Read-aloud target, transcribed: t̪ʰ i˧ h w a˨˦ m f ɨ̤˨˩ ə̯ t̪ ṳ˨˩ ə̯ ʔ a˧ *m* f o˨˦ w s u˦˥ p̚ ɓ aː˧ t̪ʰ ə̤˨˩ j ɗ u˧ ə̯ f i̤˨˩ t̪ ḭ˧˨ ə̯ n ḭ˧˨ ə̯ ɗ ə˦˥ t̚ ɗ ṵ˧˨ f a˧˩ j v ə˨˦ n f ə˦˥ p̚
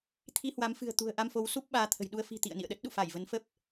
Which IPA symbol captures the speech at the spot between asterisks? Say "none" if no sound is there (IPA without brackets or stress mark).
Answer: m